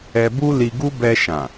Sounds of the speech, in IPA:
ɛ˧ b u˦ l i˧ ɡ u˦ b ɛ˧ ʃ ã˨

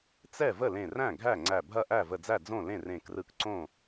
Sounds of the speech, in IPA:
t͡s ɛ˥˩ v ə˥˩ l ẽ˧˩ r æ̃˥˩ ɡʱ æ˥˩ ŋ͡ǀ æ˧˩ bʱ ɐ˥˩ ʔ æ˥˩ v ə˧˩ d͡z æ˥˩ d͡z õ˥˩ l ẽ˥˩ r ẽ˧˩ k r ɯ˧˩ k ǀ õ˥˩

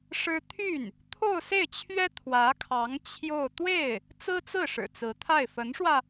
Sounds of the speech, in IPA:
ʂ ɻ̩˥ t̪ʰ y˥˩ n | t̪ʰ o˥˧ ʊ̯ s e˥˩ ɪ̯ t͡ɕʰ ɥ ɛ˥ t̪ʰ w ä˧˥ kʰ ɑ˧˥ ŋ t͡ɕʰ j o˥˧ ʊ̯ t̪ w e˥˩ ɪ̯ | t͡s ɹ̩˥ t͡s ɹ̩˥˩ ʂ ɻ̩˨˩ t͡s ɹ̩˧˥ t̪ʰ a˥˩ ɪ̯ f ə˧˥ n ʂ w ä˧

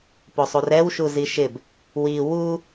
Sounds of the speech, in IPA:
p o sˤ u r ɛ w ʃ u z i ʃ ɪ b | w i w u

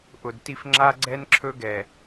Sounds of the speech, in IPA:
ʔ ʊ˨ d t i˦ f ŋ͡ǁ a˦ ɡ͡ǀ ɛ˦ n ǁʰ ɵ˦ ɡ ɛ˨

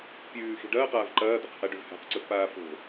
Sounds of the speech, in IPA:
pʲ ʉː x i̤ ɖ ɐː q aː v ǃ ɐː d̪ ɐ q h a ɖ ʉ v h a̤ q ǀ ɵ f p aː f o̤

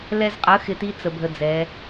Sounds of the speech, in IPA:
l ɛ˧ z qʼ ə˨˦ x ɪ˧ t i˦ t͡s ə˨ bʱ ə˧ d͡z ɛ˨˦

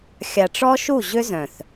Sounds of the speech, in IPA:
xʲ a˨ ʈ͡ʂ ɔ˦ ʃ u˦˨ ʑ ʏ˦ z œ̃˨ θ

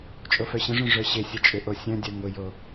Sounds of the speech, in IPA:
t͡ʃʼ o f œ ɕ ə̃ ʐ œ̃ ʐ œ ɕ ɪ sʲ ə t͡ʃʼ ʏ ʔ o sʲ œ̃ dʲ œ ŋ ʊ j o

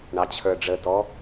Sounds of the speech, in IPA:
ɳ ɑ t͡ɕʰ ə˞ ɖ͡ʐ ə t ɔ

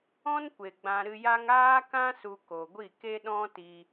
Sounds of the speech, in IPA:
ɔ̃˦ n kʷ e˨ ɡ͡b ã˧ ɾ ɨ˧ j a˦ ŋ aː˦ k ã˦ s u˧ k o˨ ɡʷ i˦˨ k e˦ ɗ ɔ̃˦ t i˧

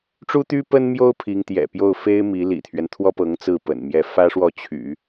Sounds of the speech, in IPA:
ʈ͡ʂ u˥ t̪ y˥ p ə˥ n m j o˥ ʊ̯ pʰ i˧˥ ŋ t̪ j ɛ̰˨˩ p j o˥˩ ʊ̯ f e˥ ɪ̯ m i˧˥ l ḭ˨˩ t̪ʰ ɥ ɛ˦ n t̪ʰ w ɔ˥ p ɤ˧˥ ŋ t͡s ɹ̩˥˩ p ə̰˨˩ n m j ɛ˥˩ f ä˥ ʂ w ɔ˥˩ t͡ɕʰ y̰˨˩˦

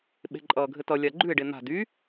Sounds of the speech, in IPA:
ɓ e̤ ǃʼ ʌː ɡʱ ɘ t ʌ lʲ a ɡ͡ǃ ʉ e̯ ɖ e n̪ a̤ d y

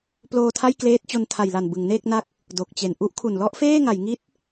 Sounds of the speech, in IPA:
p l oː˧ tʰ a˥˩ j k l eː˦˥ t̚ t͡ɕ o˧ n tʰ a˨˩ j l a˨˩ n b ɯ˩˦ ŋ n eː˥˩ k̚ n a˦˥ k̚ | d o˨˩ k̚ t͡ɕ e˨˩ n ʔ u˦˥ ʔ kʰ u˨˩ n l ɔ˦˥ ʔ f eː˥˩ ŋ a˩˦ j ŋ i˦˥ t̚

